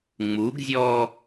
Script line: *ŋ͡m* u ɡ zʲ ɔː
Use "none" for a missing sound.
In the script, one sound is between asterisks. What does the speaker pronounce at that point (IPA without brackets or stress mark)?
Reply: ŋ͡m